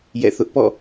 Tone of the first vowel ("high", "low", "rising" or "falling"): falling